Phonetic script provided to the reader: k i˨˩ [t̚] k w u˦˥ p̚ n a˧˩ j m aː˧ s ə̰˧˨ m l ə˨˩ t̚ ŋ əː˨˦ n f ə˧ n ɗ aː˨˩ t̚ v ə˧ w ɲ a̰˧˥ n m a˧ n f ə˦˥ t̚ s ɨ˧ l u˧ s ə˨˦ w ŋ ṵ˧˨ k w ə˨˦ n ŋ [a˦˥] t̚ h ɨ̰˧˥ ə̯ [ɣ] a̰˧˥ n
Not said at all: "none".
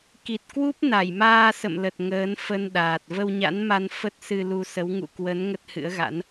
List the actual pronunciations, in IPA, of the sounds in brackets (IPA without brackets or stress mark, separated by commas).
t̚, ə˦˥, ɣ